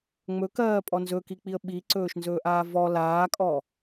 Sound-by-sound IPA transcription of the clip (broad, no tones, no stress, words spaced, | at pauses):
ŋ͡mɵkɜːpʼɔ nzɵkik͡piə̯ ɓiǀɵːʃnzɵːʔaː vɔ laːkʼɔ